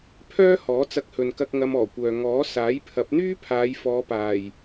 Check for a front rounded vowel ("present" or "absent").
present